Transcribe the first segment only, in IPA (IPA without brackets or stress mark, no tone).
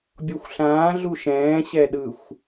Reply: bʲ